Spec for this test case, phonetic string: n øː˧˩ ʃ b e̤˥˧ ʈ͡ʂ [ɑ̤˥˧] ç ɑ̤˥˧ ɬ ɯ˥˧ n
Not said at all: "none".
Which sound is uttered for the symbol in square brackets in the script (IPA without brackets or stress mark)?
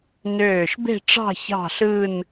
ɑ̤˥˧